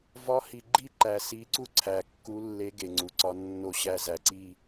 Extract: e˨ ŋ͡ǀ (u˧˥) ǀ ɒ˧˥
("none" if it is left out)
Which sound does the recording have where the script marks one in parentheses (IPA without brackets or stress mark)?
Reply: u˨